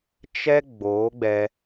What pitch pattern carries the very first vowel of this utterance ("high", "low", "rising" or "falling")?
high